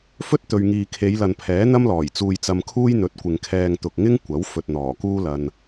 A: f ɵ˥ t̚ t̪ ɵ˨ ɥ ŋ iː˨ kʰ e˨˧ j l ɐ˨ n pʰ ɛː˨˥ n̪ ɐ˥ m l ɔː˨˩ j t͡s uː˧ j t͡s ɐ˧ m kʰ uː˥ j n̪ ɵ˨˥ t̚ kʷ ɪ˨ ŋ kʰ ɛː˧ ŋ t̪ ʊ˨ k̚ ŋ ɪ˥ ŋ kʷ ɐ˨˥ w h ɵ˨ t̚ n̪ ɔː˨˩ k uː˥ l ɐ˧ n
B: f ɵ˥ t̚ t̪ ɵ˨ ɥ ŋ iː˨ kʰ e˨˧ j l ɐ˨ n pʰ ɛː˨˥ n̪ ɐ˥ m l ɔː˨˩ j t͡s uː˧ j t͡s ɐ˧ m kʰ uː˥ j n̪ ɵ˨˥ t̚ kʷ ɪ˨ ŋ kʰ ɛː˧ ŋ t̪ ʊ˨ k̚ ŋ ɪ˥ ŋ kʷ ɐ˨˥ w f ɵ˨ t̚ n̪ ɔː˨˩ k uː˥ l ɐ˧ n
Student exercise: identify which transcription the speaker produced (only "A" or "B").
B